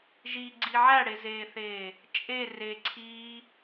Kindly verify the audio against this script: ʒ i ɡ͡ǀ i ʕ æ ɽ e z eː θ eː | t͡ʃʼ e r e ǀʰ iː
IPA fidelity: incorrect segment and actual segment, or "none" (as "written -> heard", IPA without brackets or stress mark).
none